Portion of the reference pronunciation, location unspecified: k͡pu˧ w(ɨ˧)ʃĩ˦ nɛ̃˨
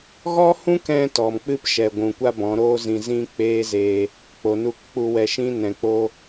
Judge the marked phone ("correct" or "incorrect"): incorrect